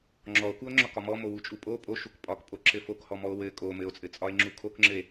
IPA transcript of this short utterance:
ŋ͡ǁɔo̯kuo̯ŋ͡ǁɒkɒ mɔmowut͡ʃʼu pʼo pʼoʃuk pʼɒkpʼoǁɘ fokhɔmɔo̯ wɘ kʼo mɘo̯t͡sʼɘt͡sʼɒe̯ŋ͡ǁu kʰokŋ͡ǁɘe̯

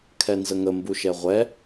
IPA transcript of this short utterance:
kʰɛnzəŋə mbuʃɛʁʷɛ

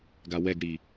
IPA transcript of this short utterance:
ɡawɛɡɽi

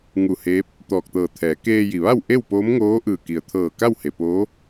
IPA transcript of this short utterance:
ŋu˧˩heː˧˥p̚ | t̪ɔː˧˩k̚t̪ɤː˧˩t̪ʰɛː˩˧ keː˧ji˩ʋa˥˨w ʔe˥˨wpoː˧˥mŋoː˧˥ʔɯː˧˩ ki˩ə̯t̪ʰɤː˧˩ ka˥˨whe˩poː˧˥

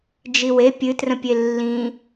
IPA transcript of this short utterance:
d͡ʒiwe pʲɨ trə̃pʲelːĩ

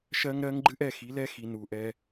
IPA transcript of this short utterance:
ʃɜ˦ŋɾɜ˦ŋ ɡ͡ǃɨ˦ʔɛ˨ xi˨˦lɛ˦xi˨ nu˨ʔɛ˦

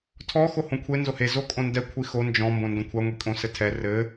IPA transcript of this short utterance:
tʰɔ xohõkʷʰe nzohe zokʼõndɛ kʷʰixo nd͡ʒɔ̃ mbõndõkʷʰa ŋʷikʼõsɘtʰɛ rɘ

